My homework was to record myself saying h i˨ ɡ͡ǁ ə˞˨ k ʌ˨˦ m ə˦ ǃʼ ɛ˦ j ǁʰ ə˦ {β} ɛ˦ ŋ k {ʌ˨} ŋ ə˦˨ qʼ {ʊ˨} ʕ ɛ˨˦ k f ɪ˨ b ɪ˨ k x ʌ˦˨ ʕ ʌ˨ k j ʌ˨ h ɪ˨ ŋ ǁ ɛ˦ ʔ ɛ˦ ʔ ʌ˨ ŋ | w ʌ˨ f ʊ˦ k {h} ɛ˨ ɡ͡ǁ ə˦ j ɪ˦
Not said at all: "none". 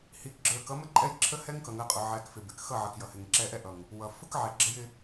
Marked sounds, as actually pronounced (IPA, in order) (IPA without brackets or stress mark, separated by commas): h, ʌ˨, ʊ˨, ʕ